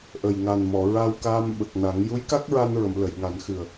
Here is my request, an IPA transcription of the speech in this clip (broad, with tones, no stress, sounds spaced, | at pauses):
ʔ ə˨˩ j ŋ a˨˩ n m ɔ˨˩˨ ɹ a˧ w k aː˧ m ɓ ə˨˩ k̚ n a˨˩˦ ŋ j u˧˥ j k a˦˥ k̚ ɹ a˧ n ɹ ə˨˩˨ m l ə˨˩˨ j ŋ a˨˩˦ n x ɨ˨˩ ə̯